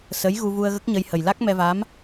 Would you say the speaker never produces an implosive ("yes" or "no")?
yes